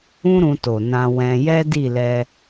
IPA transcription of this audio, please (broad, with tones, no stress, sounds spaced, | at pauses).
ũ˦ ɾ ũ˧ t o˨ n ã˧ w ɛ̃˧ j ɛ˦ d i˦˨ l ɛ˧